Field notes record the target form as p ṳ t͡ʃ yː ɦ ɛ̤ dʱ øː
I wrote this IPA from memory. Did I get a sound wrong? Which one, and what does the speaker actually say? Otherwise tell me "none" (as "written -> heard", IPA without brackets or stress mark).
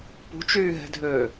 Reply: none